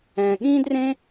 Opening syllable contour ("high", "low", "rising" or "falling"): low